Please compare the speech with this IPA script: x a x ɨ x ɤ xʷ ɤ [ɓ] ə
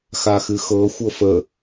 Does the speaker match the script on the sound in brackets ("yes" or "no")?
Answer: no